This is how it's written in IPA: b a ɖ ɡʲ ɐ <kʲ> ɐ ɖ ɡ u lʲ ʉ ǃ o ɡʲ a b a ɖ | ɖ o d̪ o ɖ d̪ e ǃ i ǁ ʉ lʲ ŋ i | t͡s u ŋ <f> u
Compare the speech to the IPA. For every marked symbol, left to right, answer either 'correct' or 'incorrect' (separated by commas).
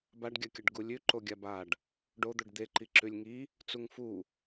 correct, correct